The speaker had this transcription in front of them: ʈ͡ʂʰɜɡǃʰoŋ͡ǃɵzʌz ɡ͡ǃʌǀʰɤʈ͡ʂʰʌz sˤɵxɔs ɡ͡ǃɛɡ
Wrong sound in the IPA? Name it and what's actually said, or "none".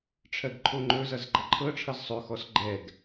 ǀʰ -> ǃʰ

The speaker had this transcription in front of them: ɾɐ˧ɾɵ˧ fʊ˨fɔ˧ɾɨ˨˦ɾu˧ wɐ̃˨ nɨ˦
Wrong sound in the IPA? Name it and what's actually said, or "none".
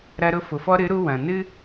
ɵ˧ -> ʊ˧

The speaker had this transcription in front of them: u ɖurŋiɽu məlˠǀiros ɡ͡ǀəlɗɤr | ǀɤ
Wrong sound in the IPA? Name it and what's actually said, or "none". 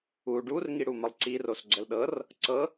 none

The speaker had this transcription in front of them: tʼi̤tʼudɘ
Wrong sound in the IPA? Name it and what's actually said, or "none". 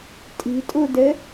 none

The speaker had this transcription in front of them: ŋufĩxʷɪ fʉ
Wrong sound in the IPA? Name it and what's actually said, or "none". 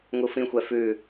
ɪ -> ɛ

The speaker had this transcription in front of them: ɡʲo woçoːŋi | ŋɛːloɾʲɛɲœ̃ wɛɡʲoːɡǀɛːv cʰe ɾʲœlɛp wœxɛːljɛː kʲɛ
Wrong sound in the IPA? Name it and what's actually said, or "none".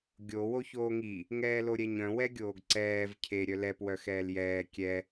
none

